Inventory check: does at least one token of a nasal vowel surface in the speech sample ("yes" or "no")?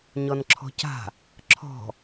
no